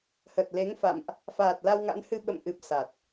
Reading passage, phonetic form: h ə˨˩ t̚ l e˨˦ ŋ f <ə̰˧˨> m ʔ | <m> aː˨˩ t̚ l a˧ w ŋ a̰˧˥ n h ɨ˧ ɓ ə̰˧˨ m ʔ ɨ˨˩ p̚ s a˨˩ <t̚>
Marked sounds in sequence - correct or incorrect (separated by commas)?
incorrect, incorrect, correct